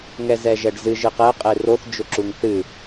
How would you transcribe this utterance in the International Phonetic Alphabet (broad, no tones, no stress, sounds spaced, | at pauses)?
ŋ ɛ z ɛ ʒ ɛ ɖ z ɨ ʒ ɨ q ɛ qʼ e r o θ d͡ʒ ʊ ǁ u ŋ θ ɨ